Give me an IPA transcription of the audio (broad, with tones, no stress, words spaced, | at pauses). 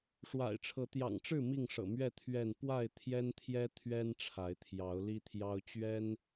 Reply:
ʂwa̰˨˩ɪ̯ʈ͡ʂʰɤ˨˦ t̪jɑ̰˨˩ŋʈ͡ʂɻ̩˥˨ mi˥˨ŋʂɤ̰˨˩mɥɛ˥˨ t̪ʰɥɛ˥˨n pwa˥˨ɪ̯t̪ʰjɛ˦nt̪ʰjɛ˦ t̪ʰɥɛ˦n ʈ͡ʂʰa˨˦ɪ̯t̪ʰjɑ˨˦ʊ̯li˦t̪ʰjɑ˦ʊ̯ t͡ɕɥɛ˦n